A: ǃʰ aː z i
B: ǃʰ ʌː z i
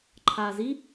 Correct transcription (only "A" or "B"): A